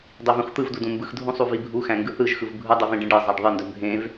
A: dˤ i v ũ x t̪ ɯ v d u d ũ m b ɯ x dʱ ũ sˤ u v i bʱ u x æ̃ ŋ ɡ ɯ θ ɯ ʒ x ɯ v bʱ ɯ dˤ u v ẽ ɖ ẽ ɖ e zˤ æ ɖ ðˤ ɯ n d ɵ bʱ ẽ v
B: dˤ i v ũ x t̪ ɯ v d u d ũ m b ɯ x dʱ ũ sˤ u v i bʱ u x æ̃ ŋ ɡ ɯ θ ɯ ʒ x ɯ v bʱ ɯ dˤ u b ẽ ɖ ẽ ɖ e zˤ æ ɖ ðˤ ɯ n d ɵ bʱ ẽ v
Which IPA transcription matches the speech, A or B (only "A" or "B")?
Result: A